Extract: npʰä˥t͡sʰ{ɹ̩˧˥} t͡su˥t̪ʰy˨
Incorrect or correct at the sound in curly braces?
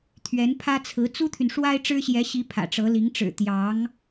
correct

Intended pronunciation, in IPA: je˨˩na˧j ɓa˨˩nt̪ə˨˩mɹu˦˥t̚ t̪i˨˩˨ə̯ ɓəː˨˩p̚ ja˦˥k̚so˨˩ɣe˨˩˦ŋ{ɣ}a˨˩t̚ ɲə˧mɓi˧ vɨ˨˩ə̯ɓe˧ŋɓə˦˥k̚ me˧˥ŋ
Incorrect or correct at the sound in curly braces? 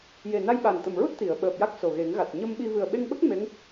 correct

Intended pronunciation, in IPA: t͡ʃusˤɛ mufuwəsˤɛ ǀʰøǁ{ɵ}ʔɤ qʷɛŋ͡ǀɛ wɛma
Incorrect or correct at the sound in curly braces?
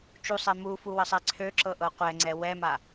incorrect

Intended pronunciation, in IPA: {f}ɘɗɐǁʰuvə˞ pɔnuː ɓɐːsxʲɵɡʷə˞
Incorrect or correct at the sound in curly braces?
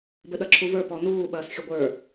incorrect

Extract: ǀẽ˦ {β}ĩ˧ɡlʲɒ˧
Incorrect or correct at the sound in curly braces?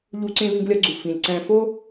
correct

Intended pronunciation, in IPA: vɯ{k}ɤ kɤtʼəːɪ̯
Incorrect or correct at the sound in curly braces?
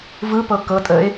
incorrect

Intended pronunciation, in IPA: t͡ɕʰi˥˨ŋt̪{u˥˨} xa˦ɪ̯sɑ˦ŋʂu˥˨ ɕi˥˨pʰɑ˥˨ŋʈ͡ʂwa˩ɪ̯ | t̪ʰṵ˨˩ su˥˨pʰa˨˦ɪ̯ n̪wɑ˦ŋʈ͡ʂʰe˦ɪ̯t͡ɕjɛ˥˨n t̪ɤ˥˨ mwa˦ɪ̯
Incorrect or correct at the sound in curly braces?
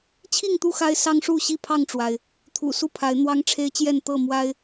correct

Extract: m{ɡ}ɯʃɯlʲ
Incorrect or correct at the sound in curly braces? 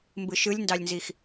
incorrect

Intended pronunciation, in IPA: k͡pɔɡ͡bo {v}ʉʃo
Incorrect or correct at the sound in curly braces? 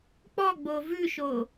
correct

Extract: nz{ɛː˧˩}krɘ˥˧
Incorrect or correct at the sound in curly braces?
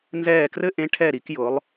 correct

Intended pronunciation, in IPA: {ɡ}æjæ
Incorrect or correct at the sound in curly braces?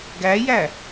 correct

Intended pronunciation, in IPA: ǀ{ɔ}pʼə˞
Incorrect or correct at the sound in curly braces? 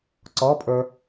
correct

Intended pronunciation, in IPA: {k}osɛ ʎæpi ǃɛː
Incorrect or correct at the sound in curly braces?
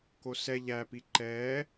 correct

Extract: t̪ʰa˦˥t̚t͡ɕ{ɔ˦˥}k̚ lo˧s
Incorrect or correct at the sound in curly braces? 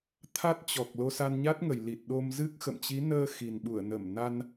incorrect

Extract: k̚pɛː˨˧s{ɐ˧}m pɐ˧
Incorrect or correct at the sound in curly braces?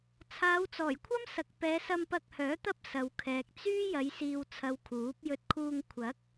correct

